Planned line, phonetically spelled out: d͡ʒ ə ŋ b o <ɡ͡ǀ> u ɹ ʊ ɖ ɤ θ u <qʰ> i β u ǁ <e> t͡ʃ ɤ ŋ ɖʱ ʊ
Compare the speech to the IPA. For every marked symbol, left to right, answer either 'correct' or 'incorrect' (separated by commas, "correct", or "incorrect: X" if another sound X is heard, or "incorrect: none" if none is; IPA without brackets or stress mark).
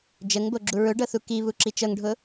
incorrect: ɡ͡ǁ, incorrect: k, incorrect: i